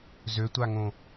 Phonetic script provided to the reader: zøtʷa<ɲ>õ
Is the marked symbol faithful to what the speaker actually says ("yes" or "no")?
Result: no